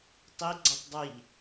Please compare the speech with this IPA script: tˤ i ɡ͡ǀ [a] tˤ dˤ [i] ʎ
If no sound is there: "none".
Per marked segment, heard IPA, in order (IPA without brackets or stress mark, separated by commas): a, i